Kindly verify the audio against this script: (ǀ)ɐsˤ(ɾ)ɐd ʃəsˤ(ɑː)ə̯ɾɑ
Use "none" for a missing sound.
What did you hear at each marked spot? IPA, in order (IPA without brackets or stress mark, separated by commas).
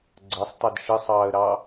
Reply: ɡ͡ǀ, tˤ, ɑː